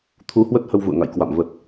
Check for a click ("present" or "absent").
absent